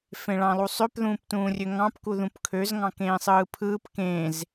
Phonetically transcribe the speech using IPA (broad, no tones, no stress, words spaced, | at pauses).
fẽɭɑ̃lˠusˤøp ðũːptũːrʲøŋɑ̃p kuðũpkʰøz ŋɑ̃kẽːsˤɯːpʰɯːp kẽz